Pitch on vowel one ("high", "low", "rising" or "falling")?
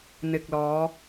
low